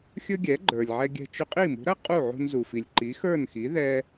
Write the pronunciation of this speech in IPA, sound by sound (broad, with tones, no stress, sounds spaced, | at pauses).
xʲ ɵ˥ ɡʲ ɛ˩˥ ɡ͡ǃ ə˞˩ lʲ ʕ ɛ˧ ɡʲ ɛ̤˧ t͡ʃ ɵ˧ qʼ i˥˩ m ṳ˩˥ ɾ ɐ˥ qʼ u˥˩ ʕ ṳ˧ n z u˩ f i˩ lʲ ǃ i˩˥ x ə˞˥˩ n x i˩˥ ð ɛ˧